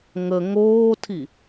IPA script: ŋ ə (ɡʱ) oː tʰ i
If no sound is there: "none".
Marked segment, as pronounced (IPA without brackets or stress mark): ŋ